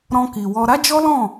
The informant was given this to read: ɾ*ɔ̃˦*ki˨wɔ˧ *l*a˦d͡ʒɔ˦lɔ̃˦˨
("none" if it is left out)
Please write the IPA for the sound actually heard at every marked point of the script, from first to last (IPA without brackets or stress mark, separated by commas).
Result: ɔ̃˧, ɾ